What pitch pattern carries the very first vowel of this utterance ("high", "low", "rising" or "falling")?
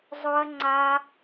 low